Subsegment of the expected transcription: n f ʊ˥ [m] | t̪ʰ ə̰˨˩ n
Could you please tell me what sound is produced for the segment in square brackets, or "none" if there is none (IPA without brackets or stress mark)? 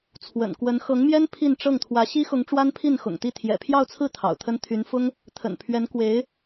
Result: ŋ